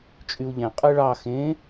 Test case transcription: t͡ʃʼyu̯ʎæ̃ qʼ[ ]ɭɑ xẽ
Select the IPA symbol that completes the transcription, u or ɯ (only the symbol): ɯ